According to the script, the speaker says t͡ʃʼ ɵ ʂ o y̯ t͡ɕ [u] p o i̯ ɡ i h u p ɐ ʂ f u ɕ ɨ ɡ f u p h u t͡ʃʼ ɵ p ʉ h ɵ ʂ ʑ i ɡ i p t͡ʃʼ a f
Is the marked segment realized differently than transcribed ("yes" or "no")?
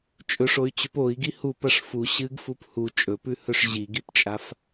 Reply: yes